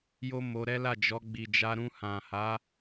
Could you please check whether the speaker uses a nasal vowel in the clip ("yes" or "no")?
yes